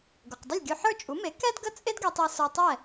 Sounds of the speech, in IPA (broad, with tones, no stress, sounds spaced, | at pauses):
ɡ o˩ q dˤ ə˥˩ lʲ ɡʲ o˧ ħ ə˞˥˩ t͡ʃʼ u˩˥ m e˩˥ k ɛ˥ d ɡ ə˥˩ t͡sʼ e˥ d ɡ ɛ˧ tˤ ɛ˧ s ə˞˧ tˤ ɛ˥˩